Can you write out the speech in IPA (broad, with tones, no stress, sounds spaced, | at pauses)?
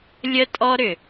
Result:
lʲ ə˦ tʼ ɔ˦ ɾ ʏ˨